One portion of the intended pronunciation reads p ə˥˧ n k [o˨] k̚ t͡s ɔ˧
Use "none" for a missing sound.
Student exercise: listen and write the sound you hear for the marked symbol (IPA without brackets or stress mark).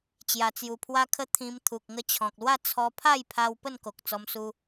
o˨